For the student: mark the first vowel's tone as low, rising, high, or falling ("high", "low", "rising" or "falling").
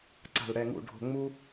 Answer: low